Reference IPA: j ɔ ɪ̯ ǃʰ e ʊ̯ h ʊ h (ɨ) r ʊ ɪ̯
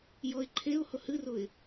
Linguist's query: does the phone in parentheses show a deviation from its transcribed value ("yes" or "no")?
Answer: no